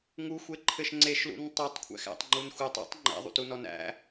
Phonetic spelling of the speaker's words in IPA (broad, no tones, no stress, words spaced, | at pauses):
ŋuxʷeǃʰɘʃ ŋ͡ǀeʃlṵn tˤɛtˤkʷʰæ̰xæ̰tˤŋ͡ǃun xutˤ ṵtˤ ŋ͡ǃæ̰ðˤṵtunɔ næ̰